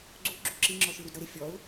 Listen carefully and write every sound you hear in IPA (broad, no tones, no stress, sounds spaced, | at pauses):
ɡ͡ǀ u ɡ͡ǁ u ǁ i ŋ͡ǁ ɔ ʃ ɯ ɾ u d ɾ ɤ ɾ e fʲ ɔ ʊ̯